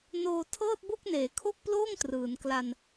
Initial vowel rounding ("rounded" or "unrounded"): rounded